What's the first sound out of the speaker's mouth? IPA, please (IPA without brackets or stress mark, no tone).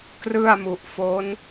k